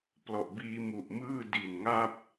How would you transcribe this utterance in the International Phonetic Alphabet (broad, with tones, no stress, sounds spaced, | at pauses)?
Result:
p l ɔ˨˩ ʔ b iː˧ m u˨˩ ʔ m ɯː˥˩ d i˨˩ n ŋ a˥˩ p̚